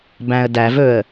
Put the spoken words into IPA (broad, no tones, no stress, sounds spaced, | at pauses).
b æ̃ ə̯ d æ v ɵ ə̯